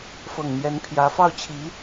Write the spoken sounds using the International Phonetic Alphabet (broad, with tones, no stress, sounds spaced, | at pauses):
f ɤ˨˩ ŋ n̪ j ɛ˧˥ n pʰ j ä˧˥ f ɑ˥˩ ʊ̯ t͡ɕʰ i˧˥